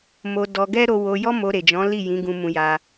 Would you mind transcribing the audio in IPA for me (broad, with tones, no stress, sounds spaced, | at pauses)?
m o˧ d ɔ˧ ɡ ɛ˦ ɾ o˧ w o˧ j ɔ˦ m o˧ ɾ e˨ d͡ʒ ɔ̃˨˦ l i˦˨ j ĩ˨˦ ɡ ũ˧ m ũ˧ j a˧